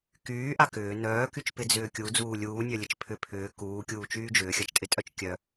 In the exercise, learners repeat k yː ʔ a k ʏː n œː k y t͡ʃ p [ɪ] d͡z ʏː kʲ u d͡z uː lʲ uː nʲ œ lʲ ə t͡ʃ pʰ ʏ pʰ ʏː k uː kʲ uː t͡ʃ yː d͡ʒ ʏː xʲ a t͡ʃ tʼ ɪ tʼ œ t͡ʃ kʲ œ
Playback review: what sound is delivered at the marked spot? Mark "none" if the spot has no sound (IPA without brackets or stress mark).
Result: ɪ